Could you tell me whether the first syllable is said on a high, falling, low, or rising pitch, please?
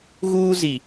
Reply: high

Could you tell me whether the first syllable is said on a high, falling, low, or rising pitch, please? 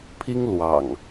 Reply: high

